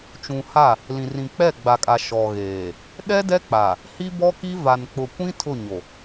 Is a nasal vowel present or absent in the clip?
present